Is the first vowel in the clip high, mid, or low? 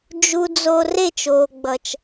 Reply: high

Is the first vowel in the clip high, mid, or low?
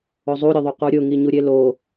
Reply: mid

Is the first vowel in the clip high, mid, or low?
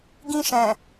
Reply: high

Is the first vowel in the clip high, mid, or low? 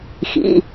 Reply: high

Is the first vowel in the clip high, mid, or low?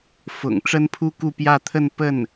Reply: high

